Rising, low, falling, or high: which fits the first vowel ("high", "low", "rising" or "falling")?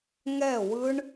falling